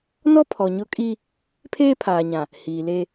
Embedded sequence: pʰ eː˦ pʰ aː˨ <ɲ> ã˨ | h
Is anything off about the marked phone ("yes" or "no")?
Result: no